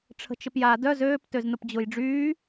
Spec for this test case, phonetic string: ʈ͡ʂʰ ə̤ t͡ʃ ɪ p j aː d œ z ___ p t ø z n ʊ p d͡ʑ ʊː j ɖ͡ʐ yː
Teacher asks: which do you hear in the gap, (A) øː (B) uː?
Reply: A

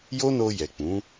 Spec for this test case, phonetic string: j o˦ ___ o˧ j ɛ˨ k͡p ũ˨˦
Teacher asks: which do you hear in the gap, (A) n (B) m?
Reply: A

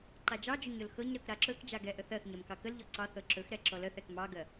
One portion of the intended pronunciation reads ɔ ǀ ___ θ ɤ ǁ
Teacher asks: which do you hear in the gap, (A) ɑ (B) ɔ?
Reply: A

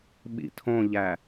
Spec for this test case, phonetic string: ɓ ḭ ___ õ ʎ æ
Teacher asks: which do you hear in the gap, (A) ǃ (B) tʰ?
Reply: B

